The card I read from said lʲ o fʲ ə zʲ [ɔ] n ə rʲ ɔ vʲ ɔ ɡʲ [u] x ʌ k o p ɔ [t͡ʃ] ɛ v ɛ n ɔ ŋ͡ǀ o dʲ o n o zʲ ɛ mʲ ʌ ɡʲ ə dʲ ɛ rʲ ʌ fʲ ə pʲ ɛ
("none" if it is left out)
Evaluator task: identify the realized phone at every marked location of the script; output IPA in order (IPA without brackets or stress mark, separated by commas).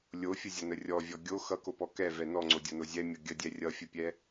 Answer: ʌ, o, k